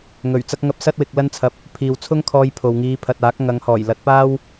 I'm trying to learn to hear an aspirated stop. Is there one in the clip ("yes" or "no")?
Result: yes